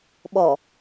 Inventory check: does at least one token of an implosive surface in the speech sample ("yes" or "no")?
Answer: yes